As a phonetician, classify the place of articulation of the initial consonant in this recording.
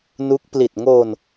alveolar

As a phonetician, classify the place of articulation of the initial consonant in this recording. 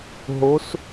glottal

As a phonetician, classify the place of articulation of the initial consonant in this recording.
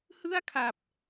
glottal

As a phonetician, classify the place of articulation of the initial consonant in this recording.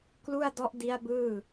velar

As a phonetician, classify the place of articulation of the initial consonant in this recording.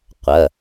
uvular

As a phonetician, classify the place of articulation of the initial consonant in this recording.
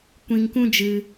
velar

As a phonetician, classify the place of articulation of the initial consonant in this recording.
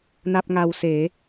alveolar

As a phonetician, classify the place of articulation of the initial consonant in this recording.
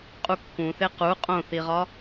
uvular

